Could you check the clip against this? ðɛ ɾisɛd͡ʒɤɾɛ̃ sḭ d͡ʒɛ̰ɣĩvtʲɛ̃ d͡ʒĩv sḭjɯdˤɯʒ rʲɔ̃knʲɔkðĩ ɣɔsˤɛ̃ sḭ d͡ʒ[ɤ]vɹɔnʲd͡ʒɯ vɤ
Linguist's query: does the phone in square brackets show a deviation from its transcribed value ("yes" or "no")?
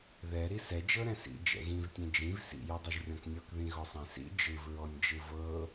yes